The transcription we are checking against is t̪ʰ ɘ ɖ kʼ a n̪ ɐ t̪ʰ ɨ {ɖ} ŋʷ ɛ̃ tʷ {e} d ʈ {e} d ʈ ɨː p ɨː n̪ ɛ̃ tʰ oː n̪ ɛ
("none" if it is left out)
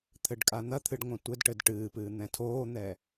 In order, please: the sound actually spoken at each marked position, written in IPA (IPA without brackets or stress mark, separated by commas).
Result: ɖ, ɘ, ɘ